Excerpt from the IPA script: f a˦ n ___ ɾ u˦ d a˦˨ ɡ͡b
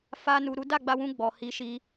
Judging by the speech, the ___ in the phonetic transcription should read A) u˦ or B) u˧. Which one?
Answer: B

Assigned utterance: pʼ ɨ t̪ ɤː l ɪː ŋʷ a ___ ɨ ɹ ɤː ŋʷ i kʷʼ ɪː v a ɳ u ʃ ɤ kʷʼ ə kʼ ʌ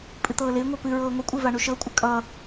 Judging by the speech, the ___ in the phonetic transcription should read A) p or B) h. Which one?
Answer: A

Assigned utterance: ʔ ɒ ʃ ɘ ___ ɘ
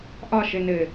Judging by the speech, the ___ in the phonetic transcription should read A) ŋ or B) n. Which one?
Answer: B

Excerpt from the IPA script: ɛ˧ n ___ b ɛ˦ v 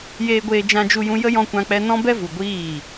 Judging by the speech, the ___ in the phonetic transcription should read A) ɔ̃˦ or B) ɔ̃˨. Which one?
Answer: A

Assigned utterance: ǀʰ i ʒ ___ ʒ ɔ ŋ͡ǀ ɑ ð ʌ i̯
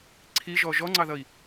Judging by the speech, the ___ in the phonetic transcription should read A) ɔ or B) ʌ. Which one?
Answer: A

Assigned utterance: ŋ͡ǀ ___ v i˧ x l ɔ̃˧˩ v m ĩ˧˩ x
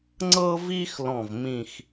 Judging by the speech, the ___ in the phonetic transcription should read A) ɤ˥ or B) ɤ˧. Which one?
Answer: B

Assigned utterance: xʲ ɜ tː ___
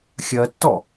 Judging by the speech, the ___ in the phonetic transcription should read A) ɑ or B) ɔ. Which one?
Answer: B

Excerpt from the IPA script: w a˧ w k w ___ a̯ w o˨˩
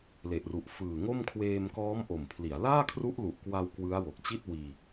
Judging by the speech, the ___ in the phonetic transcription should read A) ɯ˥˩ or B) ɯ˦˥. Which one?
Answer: B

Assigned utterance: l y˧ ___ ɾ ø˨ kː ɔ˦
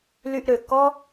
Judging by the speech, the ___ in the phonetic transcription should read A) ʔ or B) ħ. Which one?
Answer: A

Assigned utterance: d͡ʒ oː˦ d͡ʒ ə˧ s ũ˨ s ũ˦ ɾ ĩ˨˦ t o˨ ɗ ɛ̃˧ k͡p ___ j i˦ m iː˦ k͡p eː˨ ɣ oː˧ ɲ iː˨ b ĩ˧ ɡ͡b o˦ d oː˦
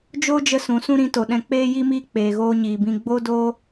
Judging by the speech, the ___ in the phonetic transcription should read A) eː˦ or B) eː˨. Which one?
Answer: A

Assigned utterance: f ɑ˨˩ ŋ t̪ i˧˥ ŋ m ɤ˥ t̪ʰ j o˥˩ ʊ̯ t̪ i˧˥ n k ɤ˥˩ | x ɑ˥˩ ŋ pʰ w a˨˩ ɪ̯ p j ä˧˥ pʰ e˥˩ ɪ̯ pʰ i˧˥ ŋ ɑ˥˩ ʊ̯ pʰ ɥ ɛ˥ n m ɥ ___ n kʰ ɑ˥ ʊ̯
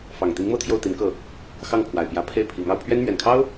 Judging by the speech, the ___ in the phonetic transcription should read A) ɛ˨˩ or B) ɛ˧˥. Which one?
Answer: A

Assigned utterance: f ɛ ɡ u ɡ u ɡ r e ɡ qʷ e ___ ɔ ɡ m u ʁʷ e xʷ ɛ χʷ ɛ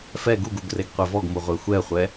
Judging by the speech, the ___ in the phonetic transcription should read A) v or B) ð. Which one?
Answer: A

